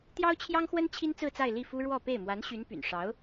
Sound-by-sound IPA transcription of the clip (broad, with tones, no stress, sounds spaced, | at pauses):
t̪ j ɑ˥ ʊ̯ t͡ɕʰ j ɑ˥ ŋ x w ə˥ n t͡ɕʰ i˥ n t͡s ɹ̩˥˧ t͡s a˥˧ ɪ̯ l i˥˩ f u˥ ɻ w ɔ˥˧ p e˥˩ ɪ̯ m w a˧˥ n ɕ y˧˥ n p y̰˨˩ n ʂ ɑ˧˥ ʊ̯